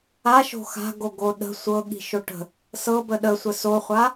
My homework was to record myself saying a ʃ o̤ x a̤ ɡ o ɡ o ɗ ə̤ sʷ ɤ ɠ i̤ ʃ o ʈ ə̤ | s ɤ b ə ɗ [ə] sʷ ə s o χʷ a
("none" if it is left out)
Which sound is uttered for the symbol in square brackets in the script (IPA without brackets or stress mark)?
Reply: ə